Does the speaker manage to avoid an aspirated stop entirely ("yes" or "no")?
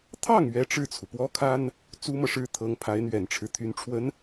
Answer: no